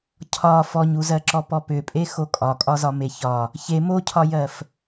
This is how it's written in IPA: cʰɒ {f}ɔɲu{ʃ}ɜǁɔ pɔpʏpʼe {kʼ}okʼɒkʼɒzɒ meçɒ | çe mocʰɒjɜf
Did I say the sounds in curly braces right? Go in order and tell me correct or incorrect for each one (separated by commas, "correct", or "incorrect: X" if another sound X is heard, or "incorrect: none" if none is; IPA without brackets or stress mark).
correct, incorrect: z, incorrect: x